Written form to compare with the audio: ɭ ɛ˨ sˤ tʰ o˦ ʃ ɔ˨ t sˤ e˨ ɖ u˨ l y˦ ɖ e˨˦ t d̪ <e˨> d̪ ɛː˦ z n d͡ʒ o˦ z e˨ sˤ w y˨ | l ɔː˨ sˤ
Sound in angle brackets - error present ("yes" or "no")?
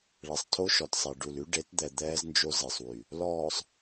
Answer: yes